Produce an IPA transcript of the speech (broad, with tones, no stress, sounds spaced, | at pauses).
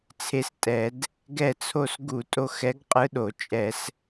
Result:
t͡sʰ e˧˥ s tʼ ɛ˧˩˧ d | ɡ ɛ˦˨ t͡sʰ o˦˨ s ɡ u˧˩˧ tʼ o˦˨ x ɛ˧˥ ɡ qʼ ɯ˧˥ ɗ o˧˩˧ t͡ʃʼ ɛ˧˩˧ s